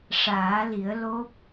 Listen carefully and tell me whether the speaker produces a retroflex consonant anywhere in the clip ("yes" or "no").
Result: yes